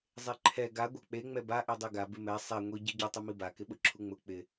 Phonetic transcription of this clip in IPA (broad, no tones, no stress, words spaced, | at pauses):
zˤeǃʰɛ ɡa ɡʷɛk͡pe ŋ͡mɛba ʔidˤeɡa bɪmɛ sˤɛ ŋʷi ɟiɟʊ tˤɪmiba kɪɓʊǁʰuŋ͡mʊ k͡pɪ